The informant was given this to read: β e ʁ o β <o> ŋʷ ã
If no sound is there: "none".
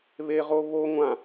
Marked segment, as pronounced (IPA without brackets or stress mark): o